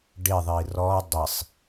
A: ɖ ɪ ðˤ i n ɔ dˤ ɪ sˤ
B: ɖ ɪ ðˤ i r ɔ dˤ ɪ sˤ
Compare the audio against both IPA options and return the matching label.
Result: B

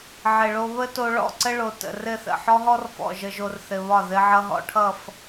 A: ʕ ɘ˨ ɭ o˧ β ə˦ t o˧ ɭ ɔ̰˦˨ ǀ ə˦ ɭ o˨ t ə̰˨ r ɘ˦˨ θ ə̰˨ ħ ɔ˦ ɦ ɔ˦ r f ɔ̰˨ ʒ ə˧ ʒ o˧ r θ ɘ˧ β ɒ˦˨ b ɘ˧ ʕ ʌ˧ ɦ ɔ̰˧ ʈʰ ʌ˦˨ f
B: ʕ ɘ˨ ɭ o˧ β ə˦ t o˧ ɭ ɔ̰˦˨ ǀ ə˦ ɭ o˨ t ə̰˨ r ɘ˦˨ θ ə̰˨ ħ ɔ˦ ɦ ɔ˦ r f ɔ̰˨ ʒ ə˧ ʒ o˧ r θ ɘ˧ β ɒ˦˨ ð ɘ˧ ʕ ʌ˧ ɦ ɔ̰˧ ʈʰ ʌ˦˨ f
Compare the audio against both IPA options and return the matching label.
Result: B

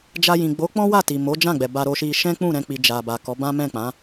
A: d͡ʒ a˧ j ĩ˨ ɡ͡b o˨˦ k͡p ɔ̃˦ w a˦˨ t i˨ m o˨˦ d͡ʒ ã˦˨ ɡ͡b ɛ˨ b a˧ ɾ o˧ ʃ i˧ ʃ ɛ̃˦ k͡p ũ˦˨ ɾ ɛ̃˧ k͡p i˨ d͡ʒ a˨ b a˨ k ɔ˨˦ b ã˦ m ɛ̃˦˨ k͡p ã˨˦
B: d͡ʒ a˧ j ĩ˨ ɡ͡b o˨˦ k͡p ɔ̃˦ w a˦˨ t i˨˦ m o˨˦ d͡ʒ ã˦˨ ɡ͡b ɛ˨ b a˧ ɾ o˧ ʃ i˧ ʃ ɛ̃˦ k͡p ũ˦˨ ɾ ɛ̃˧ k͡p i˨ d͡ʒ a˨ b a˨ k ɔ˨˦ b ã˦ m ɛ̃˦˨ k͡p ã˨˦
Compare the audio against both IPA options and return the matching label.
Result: A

